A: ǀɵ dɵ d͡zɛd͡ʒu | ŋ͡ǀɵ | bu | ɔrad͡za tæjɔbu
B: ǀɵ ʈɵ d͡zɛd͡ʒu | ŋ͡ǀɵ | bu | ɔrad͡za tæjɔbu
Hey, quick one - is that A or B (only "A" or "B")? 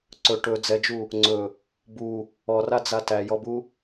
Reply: B